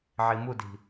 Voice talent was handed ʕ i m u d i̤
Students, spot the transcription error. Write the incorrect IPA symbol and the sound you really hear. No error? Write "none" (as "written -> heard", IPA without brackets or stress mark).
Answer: none